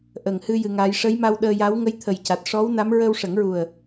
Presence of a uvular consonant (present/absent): absent